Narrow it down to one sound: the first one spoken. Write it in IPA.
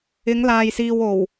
ɪ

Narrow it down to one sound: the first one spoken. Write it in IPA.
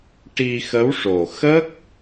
ʈ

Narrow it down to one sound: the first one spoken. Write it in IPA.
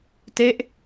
t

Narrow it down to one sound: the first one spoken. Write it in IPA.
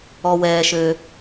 ɔ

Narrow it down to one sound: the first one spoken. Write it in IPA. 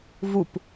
v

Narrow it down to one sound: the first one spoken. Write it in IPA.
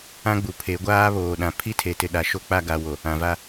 ã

